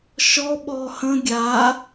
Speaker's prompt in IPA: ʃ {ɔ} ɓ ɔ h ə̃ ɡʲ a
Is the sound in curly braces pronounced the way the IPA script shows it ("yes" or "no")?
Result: yes